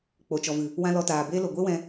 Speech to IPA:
k͡p o˨ t͡ʃ ɔ˨ v ɨ˨ | w ã˦ l ɔ˧ t aː˨ b eː˦ l o˨ ɡʷ e˦ w ɛ̃˧

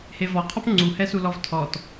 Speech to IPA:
h e v ɔ qʰ ɔ p ŋ͡ǀ u h ɛ s u l ɔ v tʰ ɔ t

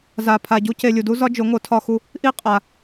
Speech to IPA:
z a˨ pʰ a˨ ɟ u˧ c e˧ lʲ u˨ d u˦ z ɒ˦ d͡ʒ o˨˦ ŋ o˨˦ tʰ ɒ˧ x u˧ | ʔ i˦ qʼ a˨

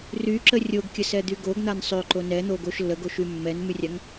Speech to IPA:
r y ǁ ə rʲ o ɡ kʲ ə s ɛ d̪ y ɡ o ɡ n̪ a n sˤ ø ǃ o n ɛ n̪ o ɡ o ʃ lː ə ɡ o ʃ y mː ɛ n m y rʲ a ŋ

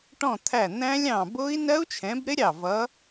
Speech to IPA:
ʈ ɔ̃˧˩ t̪ʰ æ˧˩ n̪ æ̃˦˥ lʲ ɑ̃˧˩ b ʊ˦˥ i̯ n ɜ˦˥ u̯ t͡ʃʰ ɛ̃˨˦ b ɾ ɪ˦˥ ɾʲ ɑ˧˩ v ʌ˨˦

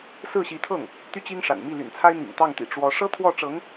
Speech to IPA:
s ɹ̩˥˩ ɕ i˧˥ t̪ʰ ɤ˥˩ ŋ | t̪ y˥ t͡ɕ i˥ ŋ ʂ a̰˨˩ n m i˥˩ l y̰˨˩ n t͡sʰ a˥ ɪ̯ n̪ ḭ˨˩ ŋ t̪ ɑ˥˩ ŋ t̪ ḭ˨˩ ʈ͡ʂ w ɔ˧˥ ʂ ɤ˥ t̪ʰ w ɔ˥˩ ʈ͡ʂ ɤ˧˥ ŋ

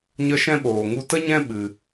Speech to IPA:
ɲ ə˧ ʃ ɛ̃˦ ɓ oː˨ ŋ u˧ t ə˦ ɲ ɛ̃˦ ɓ ɨ˧

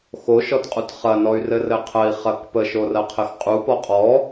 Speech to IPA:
x o ʃ ɔ t qʼ u t χ ɐ n ɔ y̯ r ɘ r ɘ qʰ ə i̯ χ ɐ k p ə ʃ o r ɐ qʰ ɘ x qʼ u p ɔ qʼ ɔ

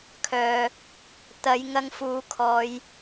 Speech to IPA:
kʰ œː˨ | t̪ ɐ˨˧ j ŋ ɐ˧ ŋ f uː˨˧ kʰ ɔː˨˧ j

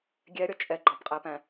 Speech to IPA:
ɡʲ ɛ ɾʲ ʌ t͡ʃʼ ɛ ɡ͡ǃ ɒ b qʼ æ p æ̃

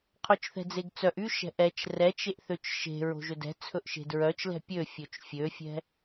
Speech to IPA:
qʰ o t͡ʃ θ ɛ̤ d͡z e ɡ t͡s œ ʔ y ʃ ɛ̤ ʔ ɛ t͡ʃ r ɛ t͡ʃ e ʔ θ ø t͡ʃ ʃ e̤ ɹ o̤ ʒ ɵ d ɛ̤ t͡sʰ ɵ ʔ ʃ e̤ d ɹ œ t͡ʃ l ɛ̤ pʲ ø fʲ ɵ t͡ʃ fʲ ø fʲ ɛ̤

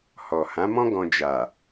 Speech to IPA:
h ɔ˨ h ã˨˦ m ɔ̃˦ ɡ ɔ̃˧ d͡ʒ a˨

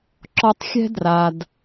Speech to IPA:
ǁ ɔ˧ tˤ xʲ ɛ̤˦ d r a˧ d

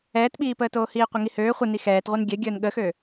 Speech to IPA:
ɛː t ɓ iː p əː t oː h iː qʷ e ŋ i h øː χʷ ə n i x ɛː t ʁʷ ɛ n ɡʲ ɛ ɡʲ əː n ɠ ə x ø

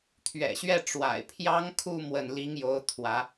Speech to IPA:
t̪ʰ ɥ ɛ̰˨˩ ɕ ɥ ɛ˥˩ ʈ͡ʂ w a̰˨˩ ɪ̯ pʰ j ɑ˥ ŋ kʰ u˥˧ m w ə˥˩ n l i˥ ŋ j o˥ ʊ̯ t̪ʰ w ä˧˥

